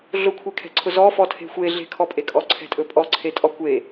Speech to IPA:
ɮ ʊ kʷʰ e kʰ ɛ̤ ǀʰ ʊ z ɔ f ɔ tʰ e̤ xʷ e ɮ e̤ kʰ ɔ pʼ e kʼ ɔ ǀʰ ɛ̤ tʼ ɵ pʼ ɔ ǀʰ e tʼ ɔ kʷ e

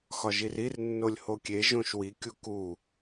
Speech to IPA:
x ɒ ʒ i r i r nː o lʲ h o kʲ e ʒ õ ʃ w i kʲ u k u

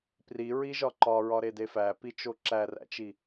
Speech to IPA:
p r i ɹ i ʒ ɒ ǃ ɒ ɹ ɒ ɾ e d e f æ p i t͡ʃ o ǁ æ r æ̰ t͡ʃ i

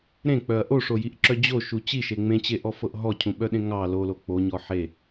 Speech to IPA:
ɾ ẽ k͡p œ ɐ̯ ʔ o ʂ o j i ʔ ǁ œ d͡ʑ o ʃ u t͡ɕ i ʃ e ŋ͡m ẽ t͡ɕ e ʔ ɔ f ɤ ʔ ɦ ɔ cʰ ũ ɓ œ ɗ ẽ ŋ ɑ l o l o k͡p o ɲ ɔ ħ e

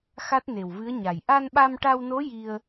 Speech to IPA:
x a˦˥ t̚ n e˨˩ w v ɨ˧˥ ə̯ ɲ a˨˩ j ʔ a˧ n ɓ a˧ m ʈ a˧ w n o˧˥ j i˧ ə̯

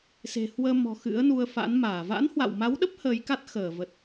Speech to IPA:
s e̤˨˩ h w əː˧ m ɔ̤˨˩ x ɨ̰˧˥ ə̯ n u˧ ə̯ f a̰˧˥ n m aː˧˩ v a̰˧˥ n h w a̰˧˨ w m a˨˦ w ɗ ə˦˥ p̚ h əː˨˦ j k a˦˥ t̚ x əː˧˩ v ə˨˩ t̚

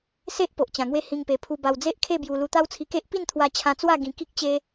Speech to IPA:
s e˦ ʔ p o˨ ʔ t͡ɕ ã˨˩ ŋ w e˦ h ĩ˧ ŋ p e˨˩ pʰ u˧ b a˧ w d͡z e˦ ʔ kʰ e˥˧ b j u˧ l u˧ t̪ a˦ w t͡sʰ i˧ k e˦ ʔ p i˥˧ n t̪ʰ w a˧ t͡ɕʰ ã˧ t͡s w a˥˧ ɡ ĩ˧ k i˦ k̚ t͡ɕ e˧

